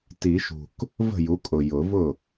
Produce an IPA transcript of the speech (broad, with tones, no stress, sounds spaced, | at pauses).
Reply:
t i˨˩˦ ʃ ṳ˨˩ k | v ə̤˥˩ j u˩˥ kʼ ʊ˨˩ j ʊ˨˩˦ v ʊ˥˩